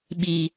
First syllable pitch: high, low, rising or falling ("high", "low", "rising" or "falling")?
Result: low